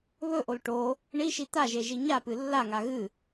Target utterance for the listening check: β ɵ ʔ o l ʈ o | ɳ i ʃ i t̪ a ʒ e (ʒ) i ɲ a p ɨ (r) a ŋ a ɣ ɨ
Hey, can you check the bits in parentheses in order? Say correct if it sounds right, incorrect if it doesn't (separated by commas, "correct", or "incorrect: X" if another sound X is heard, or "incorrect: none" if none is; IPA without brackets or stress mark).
correct, incorrect: lː